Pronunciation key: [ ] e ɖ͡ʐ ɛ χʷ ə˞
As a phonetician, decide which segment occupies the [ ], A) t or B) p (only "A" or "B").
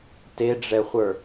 A